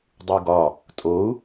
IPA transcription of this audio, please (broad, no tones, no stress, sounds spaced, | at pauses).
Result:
dˤ u ɡ ɒ | tʼ o u̯